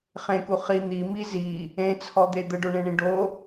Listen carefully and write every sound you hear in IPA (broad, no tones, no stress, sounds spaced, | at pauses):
χ ẽ k u χ i n̪ i m i z i | ẽ t͡sʰ ɔ d̪ e d̪ ə ɖ o ɳ ẽ ɳ ĩ ɖ o